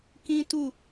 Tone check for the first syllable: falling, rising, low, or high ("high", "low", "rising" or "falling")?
high